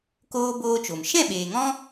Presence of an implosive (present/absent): present